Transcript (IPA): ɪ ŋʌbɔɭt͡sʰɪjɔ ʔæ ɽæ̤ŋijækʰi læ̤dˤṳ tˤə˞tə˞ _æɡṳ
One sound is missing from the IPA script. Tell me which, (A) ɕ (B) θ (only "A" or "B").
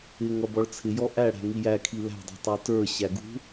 A